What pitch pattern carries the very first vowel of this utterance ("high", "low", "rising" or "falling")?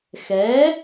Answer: rising